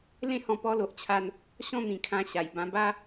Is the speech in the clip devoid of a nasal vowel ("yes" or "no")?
no